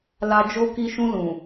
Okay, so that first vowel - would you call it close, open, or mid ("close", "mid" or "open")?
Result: open